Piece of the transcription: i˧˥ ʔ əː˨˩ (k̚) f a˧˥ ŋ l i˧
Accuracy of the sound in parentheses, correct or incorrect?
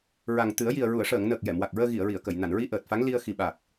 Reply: incorrect